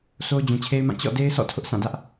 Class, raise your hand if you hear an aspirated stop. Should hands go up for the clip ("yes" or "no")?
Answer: yes